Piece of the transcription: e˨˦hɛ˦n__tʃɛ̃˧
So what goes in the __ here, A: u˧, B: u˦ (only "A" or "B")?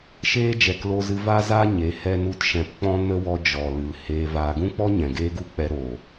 B